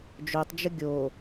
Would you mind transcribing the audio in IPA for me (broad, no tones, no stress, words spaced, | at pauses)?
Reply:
d͡ʒotˤd͡ʒə ɡʲo